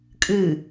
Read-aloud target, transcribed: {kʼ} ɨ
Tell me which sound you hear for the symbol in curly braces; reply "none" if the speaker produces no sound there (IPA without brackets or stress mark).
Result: kʼ